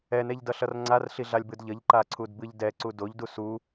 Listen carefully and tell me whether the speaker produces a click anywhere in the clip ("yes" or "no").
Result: yes